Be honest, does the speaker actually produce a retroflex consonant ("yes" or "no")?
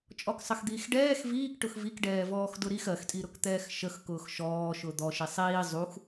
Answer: yes